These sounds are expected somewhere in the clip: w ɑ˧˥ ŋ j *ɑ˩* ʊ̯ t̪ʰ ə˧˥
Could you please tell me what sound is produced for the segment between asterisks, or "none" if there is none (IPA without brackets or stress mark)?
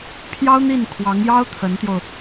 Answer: ɑ˥